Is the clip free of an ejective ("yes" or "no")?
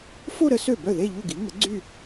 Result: yes